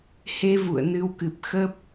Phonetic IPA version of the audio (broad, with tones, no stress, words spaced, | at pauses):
he˧vṵ˧˨ə̯ nɨ˨˦wkɨ˨˩p̚ xə˦˥p̚